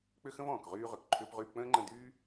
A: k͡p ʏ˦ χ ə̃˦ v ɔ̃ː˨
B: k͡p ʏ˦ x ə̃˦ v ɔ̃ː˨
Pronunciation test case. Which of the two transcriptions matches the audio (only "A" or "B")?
B